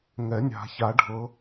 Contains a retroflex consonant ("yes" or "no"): yes